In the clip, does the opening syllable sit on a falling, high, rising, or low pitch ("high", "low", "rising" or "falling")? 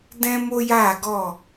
high